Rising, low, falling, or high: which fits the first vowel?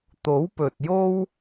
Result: rising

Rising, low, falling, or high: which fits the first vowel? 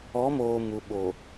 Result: rising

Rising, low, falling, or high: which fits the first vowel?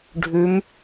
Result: rising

